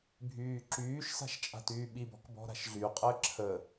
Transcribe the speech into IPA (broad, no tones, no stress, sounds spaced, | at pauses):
bʱ yː ǁ yː ʃ s a̤ ʃ t͡ʃʼ a̤ t yː ɓ i b ɔ̤ k b ɔ̤ ɾ a̤ ʃ ɮ y qʼ əː ǁʰ ə